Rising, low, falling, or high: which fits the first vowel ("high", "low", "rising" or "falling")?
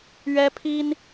high